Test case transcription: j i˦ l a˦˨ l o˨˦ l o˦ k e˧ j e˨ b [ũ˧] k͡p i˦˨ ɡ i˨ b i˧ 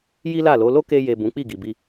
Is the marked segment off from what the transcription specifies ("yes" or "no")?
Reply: yes